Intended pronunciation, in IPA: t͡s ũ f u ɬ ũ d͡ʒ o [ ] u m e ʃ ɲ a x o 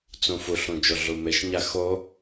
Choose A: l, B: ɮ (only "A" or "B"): B